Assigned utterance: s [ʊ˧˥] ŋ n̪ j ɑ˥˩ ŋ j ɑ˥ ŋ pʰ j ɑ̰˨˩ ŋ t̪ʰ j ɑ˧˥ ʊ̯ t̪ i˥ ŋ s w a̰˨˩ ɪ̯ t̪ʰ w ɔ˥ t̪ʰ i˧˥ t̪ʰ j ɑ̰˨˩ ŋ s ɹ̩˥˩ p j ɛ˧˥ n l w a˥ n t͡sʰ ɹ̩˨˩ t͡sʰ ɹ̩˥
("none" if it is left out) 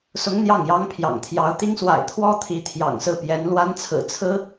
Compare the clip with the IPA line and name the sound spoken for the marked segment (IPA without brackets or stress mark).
ʊ˧˥